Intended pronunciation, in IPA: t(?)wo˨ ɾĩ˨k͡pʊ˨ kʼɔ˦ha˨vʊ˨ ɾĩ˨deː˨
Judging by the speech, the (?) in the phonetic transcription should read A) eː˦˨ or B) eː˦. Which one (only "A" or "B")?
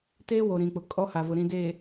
B